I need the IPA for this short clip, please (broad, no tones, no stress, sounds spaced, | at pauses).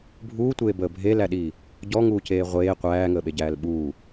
bʱ uː tʷ eː b əː bʱ e l æ ɗ iː | ɟ ɔ ŋ uː c eː ʁʷ eː qʷ æː ŋ əː ɓ e ɟ æː l ɓ uː